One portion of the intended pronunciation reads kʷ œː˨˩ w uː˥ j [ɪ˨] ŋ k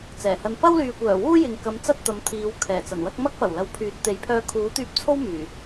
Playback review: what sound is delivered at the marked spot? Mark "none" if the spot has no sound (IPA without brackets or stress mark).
ɪ˨